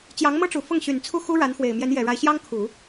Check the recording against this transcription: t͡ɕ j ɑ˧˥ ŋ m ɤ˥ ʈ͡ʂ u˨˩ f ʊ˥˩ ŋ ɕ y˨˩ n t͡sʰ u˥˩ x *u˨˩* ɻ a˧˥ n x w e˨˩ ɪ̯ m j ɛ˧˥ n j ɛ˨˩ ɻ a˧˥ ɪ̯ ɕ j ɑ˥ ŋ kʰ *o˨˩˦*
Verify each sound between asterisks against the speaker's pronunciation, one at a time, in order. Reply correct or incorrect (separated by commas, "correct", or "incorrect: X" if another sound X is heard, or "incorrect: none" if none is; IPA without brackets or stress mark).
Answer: incorrect: u˥, incorrect: u˨˩˦